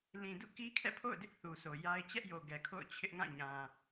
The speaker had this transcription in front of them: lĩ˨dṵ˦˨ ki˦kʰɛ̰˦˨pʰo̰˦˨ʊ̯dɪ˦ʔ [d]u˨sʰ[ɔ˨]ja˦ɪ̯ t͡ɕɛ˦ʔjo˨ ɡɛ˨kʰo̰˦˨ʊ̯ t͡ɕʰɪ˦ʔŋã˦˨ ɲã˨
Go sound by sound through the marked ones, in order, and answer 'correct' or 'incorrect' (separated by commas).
incorrect, incorrect